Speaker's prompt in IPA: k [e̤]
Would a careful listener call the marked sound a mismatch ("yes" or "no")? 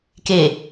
yes